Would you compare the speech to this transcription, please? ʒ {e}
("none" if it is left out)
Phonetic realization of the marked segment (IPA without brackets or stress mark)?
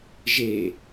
e